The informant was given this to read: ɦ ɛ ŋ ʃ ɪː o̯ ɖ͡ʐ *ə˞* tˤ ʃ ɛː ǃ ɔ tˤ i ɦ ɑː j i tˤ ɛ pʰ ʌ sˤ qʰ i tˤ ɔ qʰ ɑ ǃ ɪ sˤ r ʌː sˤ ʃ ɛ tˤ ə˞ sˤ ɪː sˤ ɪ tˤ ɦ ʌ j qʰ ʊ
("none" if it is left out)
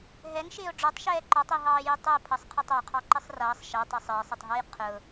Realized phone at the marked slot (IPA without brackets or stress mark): ə˞